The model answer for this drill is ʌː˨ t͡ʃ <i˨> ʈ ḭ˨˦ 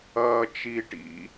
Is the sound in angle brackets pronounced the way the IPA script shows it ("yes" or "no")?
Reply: yes